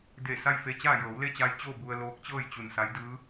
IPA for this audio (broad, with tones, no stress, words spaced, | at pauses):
de˧˩ sa˥˨jfe˧t͡ɕaː˥˨ jɤː˩˧wle˥˨t͡ɕa˧jt͡ɕoː˥˨ bu˧ə̯loː˧˥k̚t͡ɕɤː˥˨jt͡ɕu˧˩n sa˧˥jdɯː˧˥